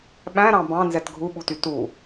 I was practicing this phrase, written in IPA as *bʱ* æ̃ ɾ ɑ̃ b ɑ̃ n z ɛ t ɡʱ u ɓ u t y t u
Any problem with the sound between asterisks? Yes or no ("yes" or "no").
yes